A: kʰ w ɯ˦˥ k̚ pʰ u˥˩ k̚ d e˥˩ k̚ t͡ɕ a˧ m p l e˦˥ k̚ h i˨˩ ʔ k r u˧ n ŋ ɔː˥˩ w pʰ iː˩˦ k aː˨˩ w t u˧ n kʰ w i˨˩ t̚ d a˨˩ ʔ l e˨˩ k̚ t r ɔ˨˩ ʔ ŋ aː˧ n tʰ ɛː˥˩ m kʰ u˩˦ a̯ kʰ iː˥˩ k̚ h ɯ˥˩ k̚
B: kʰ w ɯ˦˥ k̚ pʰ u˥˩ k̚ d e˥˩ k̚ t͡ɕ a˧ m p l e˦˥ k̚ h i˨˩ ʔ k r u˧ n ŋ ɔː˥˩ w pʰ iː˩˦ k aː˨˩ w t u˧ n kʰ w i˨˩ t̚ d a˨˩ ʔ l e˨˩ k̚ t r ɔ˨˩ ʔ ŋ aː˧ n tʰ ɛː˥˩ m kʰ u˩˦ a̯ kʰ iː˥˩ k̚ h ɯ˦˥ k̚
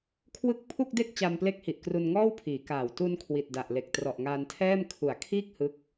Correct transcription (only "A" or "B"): B